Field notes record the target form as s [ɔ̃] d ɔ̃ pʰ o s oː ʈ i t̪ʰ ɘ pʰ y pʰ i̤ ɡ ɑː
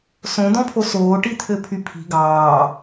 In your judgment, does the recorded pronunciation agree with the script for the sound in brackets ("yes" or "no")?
no